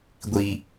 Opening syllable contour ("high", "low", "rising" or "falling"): low